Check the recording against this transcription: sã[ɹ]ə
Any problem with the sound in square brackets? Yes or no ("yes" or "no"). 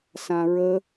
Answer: no